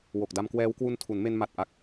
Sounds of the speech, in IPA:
w o˨˩ k̚ d a˧ m k w ɛː˦˥ w k w u˧ n tʰ u˩˦ n m e˧ n m a˨˩ t̚ ʔ a˨˩ k̚

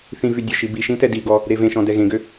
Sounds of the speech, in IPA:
θ ĩ v y dʲ ɔ ʃ i b i ʃ ĩ t ɛ d i ɡ ɔ | ɾ e v ẽ ʃ ɔ̃ d ɛ ɣ ẽ ɡ ø

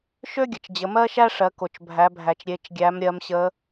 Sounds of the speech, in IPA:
ʃ ø˥ ɡʲ ə˩ t͡ʃ d͡ʑ ə˩˧ m ɜ˥ ʃ æ˥ ʂ ɜ˩˧ k o˩ t͡ʃ bʱ æ˩˧ bʱ æ˩ t͡ʃ ɾʲ e˩˧ t͡ʃ ɡʲ æ˩˧ m ɾʲ ɜ˩˧ m ɕ ə˩˧

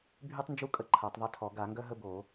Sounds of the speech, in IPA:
bʱ y˦ tˤ n d͡ʒ u˦ kʼ ə˦ ǃʰ a˨˩˦ tˤ ðˤ ø˦ tʰ ɔ˨˩˦ ɡ a˨˩˦ ŋ ɡ œ˦ ɦ ə˦ b o˨˩˦

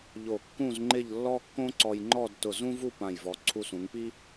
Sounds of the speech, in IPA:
ʎ o˧˩ kː ũ˥˧ z ŋ͡ǃ ɪ˥˧ ʎ lː ɔ˥ kː õ˥ ǀ ɔ˧ j ŋ͡ǃ ɔ˥˧ d t ʊ˧˩ z ũ˥ v u˥˧ p ã˧˩ j v ɔ˩˧ ǀʰ u˧ s ũ˩˧ ŋ p i˥

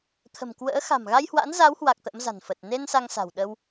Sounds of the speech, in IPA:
t̪ʰ ə̤˨˩ m k w ə̰ː˧˥ x a̤˨˩ m ɣ a˧ j h w a̰˧˥ n z a˨˦ w h w a˨˩ k̚ t̪ ə̰˧˥ m z a̤˨˩ n f ə˨˩ t̚ n e˧ n s a˧ ŋ s a̤˨˩ w ɗ ə˧ w

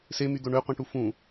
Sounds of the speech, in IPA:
s e m y d̪ o ɳ ø qʷ ĩ ʈ u f ũ

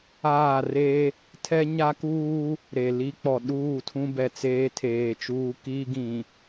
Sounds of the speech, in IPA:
aː˦˨ r e˦ | tʰ ɛ˦ ɲ a˦ k uː˦ | ɾ e˨ l i˦ k͡p ɔ˨ ɗ uː˦˨ tʰ ũ˦ b ɛ˨ t͡s eː˦ tʰ eː˨ t͡ʃ uː˦ k iː˦ ɡ ĩ˨

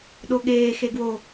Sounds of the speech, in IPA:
ɗ o ɠ eː x e ɡ w o

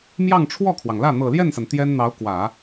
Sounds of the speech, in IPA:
m j ɑ˥˧ ŋ ʈ͡ʂʰ w ɔ˥˩ kʰ w ɑ˩ ŋ l ä˥˩ n̪ ɤ˨˩ l j ɛ˥˩ n s a˩ n t̪ j ɛ˥ n n̪ ɑ˧˥ ʊ̯ k w ä˨˩˦

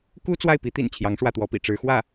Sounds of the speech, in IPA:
k u˥ t͡s w a˥˩ ɪ̯ p i˧˥ t̪ ḭ˨˩ n t͡ɕʰ j ɑ˧˥ ŋ ʂ w ä˥˩ t̪ w ɔ˧˥ p ḭ˨˩ ʈ͡ʂ ɻ̩˧˥ x w ä˥˩

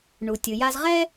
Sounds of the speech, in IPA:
ɳ u˩ tʲ ɯ˩ j a˧ z ʁ ɛ˥

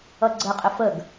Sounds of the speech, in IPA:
ʌ ɡ͡ǀ ə qʼ ɪ f ə ɡ

